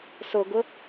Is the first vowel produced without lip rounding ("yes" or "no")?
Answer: no